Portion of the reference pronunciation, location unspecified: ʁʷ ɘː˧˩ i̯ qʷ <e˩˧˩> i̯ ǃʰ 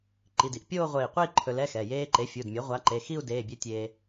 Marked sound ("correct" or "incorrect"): incorrect